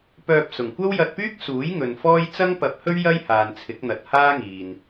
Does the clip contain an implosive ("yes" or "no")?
no